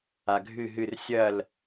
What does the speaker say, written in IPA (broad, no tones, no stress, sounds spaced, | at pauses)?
a ɡʱ ɨ ɦ ɨ r sʲ ɐ l